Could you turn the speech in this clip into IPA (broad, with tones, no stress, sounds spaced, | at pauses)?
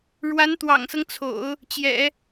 ɻ w a˧˥ n t̪ w ɑ̰˨˩ ŋ s ɤ˦ ŋ t͡sʰ o̰˨˩˦ ʊ̯ | t͡ɕ j ɛ̰˨˩˦